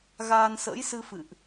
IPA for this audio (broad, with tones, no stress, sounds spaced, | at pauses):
ɣ aː˧ n s ə̰ː˧˥ j s ɨ˧ f ɨ̰˧˨ ʔ